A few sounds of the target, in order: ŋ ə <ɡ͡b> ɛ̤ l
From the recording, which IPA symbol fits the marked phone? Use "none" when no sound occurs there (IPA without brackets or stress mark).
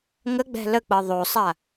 ɡ͡b